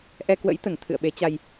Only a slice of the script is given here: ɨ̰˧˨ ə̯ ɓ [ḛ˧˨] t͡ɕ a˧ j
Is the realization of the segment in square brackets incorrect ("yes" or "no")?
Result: yes